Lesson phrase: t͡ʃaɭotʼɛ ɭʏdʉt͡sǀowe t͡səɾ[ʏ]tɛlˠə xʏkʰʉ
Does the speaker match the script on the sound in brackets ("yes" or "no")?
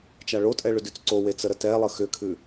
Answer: no